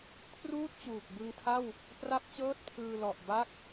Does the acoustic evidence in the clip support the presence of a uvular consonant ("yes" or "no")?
no